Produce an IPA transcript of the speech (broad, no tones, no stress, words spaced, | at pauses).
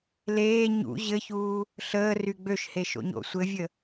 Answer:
leː ɲṵ ʑɘçuː | ɬəːry ɡ͡bøʃheʃo̰ɲo̰ sʷɘvʲə